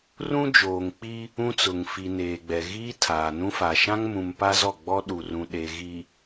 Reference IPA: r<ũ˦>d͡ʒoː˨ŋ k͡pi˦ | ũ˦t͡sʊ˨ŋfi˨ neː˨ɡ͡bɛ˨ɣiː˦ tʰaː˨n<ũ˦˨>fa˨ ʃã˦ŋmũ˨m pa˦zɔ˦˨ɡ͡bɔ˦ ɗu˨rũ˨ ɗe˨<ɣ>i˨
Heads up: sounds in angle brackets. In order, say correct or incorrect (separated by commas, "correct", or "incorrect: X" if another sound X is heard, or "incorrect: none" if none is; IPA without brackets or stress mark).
correct, incorrect: ũ˦, correct